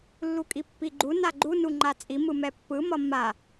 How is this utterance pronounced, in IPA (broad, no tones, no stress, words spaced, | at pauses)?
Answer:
lːukʼipːiɡ͡ǃu naɡ͡ǃu nuŋ͡ǃat͡sʼi mɯmɛpːɯ mʌmːa